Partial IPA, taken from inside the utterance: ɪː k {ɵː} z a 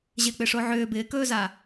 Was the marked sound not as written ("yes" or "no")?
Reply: no